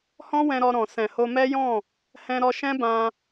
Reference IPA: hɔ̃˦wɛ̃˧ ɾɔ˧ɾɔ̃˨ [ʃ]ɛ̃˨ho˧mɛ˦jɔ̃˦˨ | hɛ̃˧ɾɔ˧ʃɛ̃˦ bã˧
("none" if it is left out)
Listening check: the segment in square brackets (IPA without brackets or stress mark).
s